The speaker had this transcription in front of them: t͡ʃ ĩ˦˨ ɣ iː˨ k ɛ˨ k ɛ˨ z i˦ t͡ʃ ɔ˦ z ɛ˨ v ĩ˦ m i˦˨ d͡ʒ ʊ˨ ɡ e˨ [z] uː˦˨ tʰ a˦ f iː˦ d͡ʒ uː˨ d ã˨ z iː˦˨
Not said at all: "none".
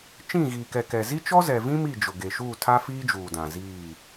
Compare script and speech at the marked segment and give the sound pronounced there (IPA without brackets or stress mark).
ʃ